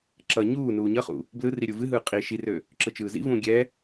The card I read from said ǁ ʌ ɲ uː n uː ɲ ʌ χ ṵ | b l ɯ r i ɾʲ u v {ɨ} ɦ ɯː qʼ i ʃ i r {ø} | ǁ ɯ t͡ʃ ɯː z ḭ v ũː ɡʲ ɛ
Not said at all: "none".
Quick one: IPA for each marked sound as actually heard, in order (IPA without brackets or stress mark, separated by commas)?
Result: ɨ, ø